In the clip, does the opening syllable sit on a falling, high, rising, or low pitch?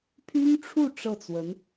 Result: high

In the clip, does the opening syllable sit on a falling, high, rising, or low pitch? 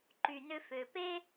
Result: low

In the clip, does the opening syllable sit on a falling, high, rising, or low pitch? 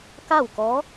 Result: falling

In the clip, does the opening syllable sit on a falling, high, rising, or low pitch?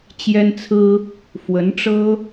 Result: high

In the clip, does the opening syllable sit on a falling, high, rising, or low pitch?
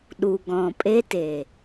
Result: low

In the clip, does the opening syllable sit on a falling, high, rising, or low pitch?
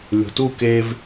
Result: low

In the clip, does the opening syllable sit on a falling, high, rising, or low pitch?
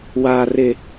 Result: low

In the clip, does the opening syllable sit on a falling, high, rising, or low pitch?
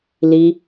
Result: high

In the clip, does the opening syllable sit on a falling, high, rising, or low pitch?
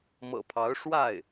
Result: low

